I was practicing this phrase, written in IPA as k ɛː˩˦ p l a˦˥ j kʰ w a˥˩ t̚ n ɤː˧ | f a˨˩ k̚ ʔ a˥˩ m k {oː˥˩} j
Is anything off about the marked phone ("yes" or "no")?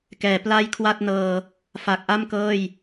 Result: yes